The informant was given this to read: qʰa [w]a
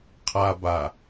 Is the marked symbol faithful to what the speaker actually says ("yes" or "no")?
no